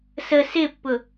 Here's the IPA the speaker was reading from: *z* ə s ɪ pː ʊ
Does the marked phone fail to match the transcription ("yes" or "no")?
yes